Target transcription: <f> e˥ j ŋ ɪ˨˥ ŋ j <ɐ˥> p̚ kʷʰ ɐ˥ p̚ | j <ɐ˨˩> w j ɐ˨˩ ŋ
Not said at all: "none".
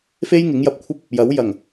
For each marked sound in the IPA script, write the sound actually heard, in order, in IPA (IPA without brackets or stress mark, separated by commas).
f, ɐ˧, ɐ˨˥